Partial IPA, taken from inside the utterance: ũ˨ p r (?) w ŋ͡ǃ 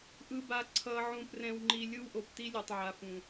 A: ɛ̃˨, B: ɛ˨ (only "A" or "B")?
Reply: A